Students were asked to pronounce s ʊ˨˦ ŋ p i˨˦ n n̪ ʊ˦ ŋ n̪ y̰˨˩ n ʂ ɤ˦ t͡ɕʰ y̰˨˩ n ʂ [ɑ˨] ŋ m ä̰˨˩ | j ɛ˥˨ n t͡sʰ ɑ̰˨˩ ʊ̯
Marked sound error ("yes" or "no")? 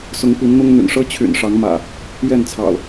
yes